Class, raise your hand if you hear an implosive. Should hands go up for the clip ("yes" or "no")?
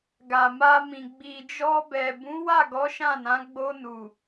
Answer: no